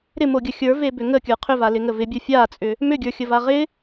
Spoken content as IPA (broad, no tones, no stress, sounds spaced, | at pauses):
ɾ ɪ m o ɡʲ ə xʲ ə˞ v e b ʏ ŋ ə kʲ ə˞ qʰ ʏ v a l ɪ ŋ ə v ɪ bʲ ə˞ fʲ a t͡sʼ ʏ | m ʏ ɡʲ ə˞ xʲ ə v a ʁ ɪ